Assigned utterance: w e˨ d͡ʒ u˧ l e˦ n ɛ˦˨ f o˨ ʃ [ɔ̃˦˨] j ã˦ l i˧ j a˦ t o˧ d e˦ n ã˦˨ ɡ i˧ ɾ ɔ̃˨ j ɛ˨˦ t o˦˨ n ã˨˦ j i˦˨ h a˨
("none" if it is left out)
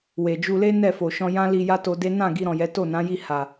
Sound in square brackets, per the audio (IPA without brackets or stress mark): ɔ̃˧